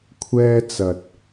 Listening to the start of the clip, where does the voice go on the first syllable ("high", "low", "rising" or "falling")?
high